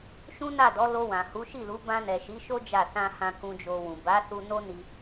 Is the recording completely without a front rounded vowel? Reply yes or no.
yes